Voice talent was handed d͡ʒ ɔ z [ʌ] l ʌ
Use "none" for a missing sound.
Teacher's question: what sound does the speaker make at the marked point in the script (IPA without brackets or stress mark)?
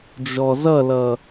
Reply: ʌ